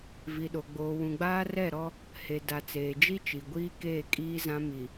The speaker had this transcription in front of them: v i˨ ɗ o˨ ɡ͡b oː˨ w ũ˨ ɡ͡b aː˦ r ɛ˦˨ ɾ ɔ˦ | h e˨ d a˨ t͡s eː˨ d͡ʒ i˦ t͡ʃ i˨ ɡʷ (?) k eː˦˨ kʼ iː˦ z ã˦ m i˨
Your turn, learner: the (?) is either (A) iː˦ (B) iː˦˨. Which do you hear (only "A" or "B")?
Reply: A